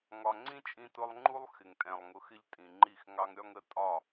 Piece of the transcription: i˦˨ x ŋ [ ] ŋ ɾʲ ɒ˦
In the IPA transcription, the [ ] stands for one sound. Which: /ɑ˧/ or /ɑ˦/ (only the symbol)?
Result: ɑ˦